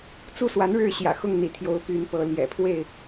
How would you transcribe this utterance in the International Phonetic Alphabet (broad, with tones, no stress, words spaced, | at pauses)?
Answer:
t͡su˦swa˨˦nɻɻ̩˥˨ ɕjä̰˨˩xʊ˥˨ŋn̪ḭ˨˩ t̪ʰjo˨˦ʊ̯py˨˦npɤ˨˦ ljɛ̰˨˩pʰwe˥˨ɪ̯